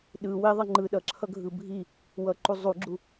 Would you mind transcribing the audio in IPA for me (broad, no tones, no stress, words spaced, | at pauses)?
ɗɯ weðˤe ŋ͡ǃɯ ɗʌǁʰʌɡʱɯ bʱi | wʌǃu zˤuɡ͡ǁu